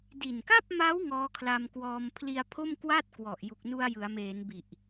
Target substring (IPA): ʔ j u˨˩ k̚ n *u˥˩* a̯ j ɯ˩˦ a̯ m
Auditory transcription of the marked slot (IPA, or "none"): u˧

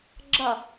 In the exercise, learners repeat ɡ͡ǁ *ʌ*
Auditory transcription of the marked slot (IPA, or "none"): ʌ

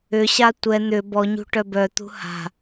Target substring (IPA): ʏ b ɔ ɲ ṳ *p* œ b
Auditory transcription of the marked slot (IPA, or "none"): ʈ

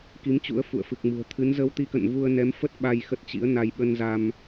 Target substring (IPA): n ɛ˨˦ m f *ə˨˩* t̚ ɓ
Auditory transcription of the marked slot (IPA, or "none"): ə˦˥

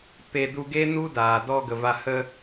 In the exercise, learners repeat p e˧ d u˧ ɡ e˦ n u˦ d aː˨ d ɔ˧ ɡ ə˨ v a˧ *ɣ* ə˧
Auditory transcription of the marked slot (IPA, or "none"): h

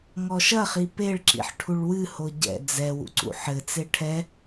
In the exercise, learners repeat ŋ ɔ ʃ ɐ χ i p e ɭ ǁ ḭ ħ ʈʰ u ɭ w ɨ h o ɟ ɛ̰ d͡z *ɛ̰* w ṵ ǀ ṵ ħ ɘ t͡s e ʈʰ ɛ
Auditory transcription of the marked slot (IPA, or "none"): ɛ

